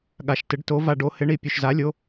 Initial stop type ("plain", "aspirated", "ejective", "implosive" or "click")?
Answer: implosive